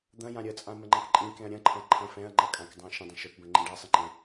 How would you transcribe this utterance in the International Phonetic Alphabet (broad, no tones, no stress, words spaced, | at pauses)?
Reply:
d̪ɐ̃jã ɾʲət͡sʼã məŋ͡ǃɐ̃kǃʼĩkɛ̃ɐ̯ ɾʲɐ̃ǃʰɐ̃ ǃʰɐ̃ fɛ̃ɐ̯ŋ͡ǃɐ kʼãkdˤã ʃə̃dˤə̃ ʃɵpbə̃ ŋ͡ǃẽɖasˤɨ ŋ͡ǃɛ̃